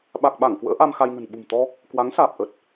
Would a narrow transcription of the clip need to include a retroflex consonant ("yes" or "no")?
no